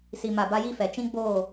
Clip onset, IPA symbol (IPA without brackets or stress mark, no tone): s